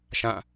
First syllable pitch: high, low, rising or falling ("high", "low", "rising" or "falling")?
falling